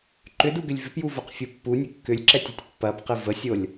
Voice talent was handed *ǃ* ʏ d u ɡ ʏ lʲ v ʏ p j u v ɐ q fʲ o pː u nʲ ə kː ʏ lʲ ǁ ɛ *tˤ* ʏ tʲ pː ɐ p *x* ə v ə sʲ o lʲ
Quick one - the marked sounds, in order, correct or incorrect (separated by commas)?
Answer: correct, incorrect, incorrect